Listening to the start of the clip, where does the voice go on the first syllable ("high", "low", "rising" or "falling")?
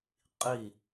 falling